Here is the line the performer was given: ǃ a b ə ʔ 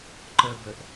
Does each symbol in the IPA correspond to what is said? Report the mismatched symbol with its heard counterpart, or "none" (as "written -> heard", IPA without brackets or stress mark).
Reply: a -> ə